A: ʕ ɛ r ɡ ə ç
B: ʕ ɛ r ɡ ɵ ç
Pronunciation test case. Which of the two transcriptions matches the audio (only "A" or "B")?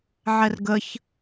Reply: A